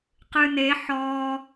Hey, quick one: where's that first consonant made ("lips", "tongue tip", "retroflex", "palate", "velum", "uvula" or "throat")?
uvula